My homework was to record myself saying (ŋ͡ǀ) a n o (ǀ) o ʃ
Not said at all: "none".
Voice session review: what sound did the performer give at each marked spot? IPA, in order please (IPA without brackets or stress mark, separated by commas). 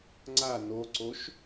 ŋ͡ǀ, ǀ